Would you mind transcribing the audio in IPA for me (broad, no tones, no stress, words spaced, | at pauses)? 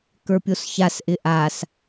kə˞pʲosçasʔɪ ʔas